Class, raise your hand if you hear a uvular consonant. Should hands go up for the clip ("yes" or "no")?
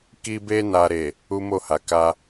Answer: no